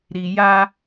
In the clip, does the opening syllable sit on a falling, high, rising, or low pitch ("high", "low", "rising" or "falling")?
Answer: low